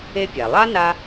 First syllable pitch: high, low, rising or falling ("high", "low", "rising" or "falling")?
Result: high